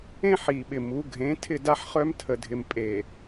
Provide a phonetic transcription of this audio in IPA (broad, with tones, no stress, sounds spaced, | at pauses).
ẽ˦ ħ i˨ ɓ ɪ˨ m u˨˦ ɡʱ ẽ˨˦ tʰ ɪ˦˨ d a˦ ħ χ œ˦ m tʰ ə˨ dʱ ɪ˨ m pʼ e˨